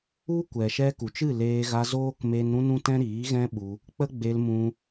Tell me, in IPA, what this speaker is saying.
u˦ kʷ ɛ˨ ʃ ɛ˧ k u˨ t͡ʃ ɨ˦˨ l eː˧ ɣ a˧ z oː˦ k m e˧ n ɾ ũ˦ n ũ˦ t ɛ̃˦ ɾ iː˨˦ ɣ ɛ̃˦ ɓ u˧ | k͡p ə˦ ɡ͡b e˧ l m ũ˧

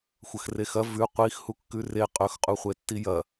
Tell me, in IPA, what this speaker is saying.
xʷ ɐ x r e x ɐ v ʉ qʷ i x h u kː ʉ r e qʼ ɵ x qʼ u χʷ e tː i j ɐ

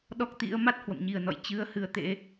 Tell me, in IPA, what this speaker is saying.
ɗ ɔ˦˥ k̚ t̪ ḭ˧˥ ə̯ m a˦˥ t̚ h w ə̰˧˨ m ɲ i˨˩ ə̯ n ɔ̰˧˨ j t͡ɕ ɨ˨˦ ə̯ h ɨ˨˦ ə̯ t̪ ḛ˧˥

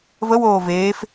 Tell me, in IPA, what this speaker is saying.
v ə w oː v eː f

